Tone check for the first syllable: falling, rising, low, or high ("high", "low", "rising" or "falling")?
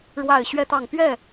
low